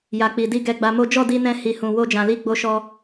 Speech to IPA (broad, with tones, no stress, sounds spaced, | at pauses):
j a˨ k͡p i˨ d i˧ ɡ ɛ˧ ɡ͡b a˧ m o˦ d͡ʒ ɔ˦˨ d i˧ n ɛ̃˧ h i˨ h ũ˨ w o˧ d͡ʒ ã˨ l i˧ ɡ͡b o˧ ʃ ɔ˧